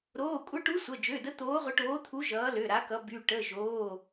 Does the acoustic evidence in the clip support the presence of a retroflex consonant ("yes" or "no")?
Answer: yes